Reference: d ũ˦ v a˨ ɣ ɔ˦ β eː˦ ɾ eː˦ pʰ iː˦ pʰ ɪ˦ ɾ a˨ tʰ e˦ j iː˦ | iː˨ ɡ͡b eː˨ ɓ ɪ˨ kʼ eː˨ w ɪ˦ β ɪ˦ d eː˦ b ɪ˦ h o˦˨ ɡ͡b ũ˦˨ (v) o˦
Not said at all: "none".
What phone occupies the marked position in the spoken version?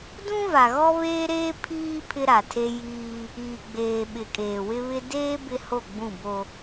b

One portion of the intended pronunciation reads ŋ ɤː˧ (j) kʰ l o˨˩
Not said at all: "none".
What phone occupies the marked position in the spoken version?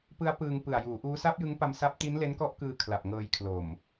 j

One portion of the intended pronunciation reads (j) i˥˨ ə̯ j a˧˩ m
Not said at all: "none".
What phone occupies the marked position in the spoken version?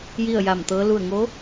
j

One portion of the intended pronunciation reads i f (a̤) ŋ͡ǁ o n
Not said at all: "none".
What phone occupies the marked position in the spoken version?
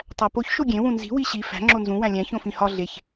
æ̤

